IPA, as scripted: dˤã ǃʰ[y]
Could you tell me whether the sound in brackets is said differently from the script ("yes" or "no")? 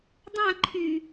no